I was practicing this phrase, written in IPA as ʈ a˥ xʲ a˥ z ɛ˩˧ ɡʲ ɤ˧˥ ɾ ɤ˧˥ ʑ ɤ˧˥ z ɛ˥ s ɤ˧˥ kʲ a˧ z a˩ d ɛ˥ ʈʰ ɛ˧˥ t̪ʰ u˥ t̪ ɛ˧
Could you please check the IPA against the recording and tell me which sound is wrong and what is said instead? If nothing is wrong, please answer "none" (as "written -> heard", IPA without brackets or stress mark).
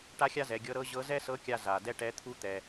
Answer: ʈʰ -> ʈ